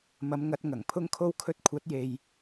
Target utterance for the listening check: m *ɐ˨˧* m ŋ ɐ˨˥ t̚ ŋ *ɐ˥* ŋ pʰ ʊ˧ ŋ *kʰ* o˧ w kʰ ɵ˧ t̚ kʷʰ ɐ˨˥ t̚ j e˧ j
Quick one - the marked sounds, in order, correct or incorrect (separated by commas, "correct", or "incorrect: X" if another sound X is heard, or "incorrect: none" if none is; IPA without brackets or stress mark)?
correct, incorrect: ɐ˨˩, correct